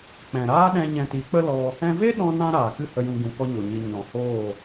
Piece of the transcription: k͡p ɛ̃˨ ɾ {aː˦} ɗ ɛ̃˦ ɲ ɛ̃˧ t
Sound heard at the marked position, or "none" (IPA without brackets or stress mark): aː˦